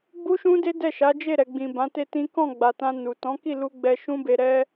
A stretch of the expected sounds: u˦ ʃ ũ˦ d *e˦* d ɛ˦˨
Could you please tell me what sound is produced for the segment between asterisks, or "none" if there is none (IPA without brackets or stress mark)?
e˦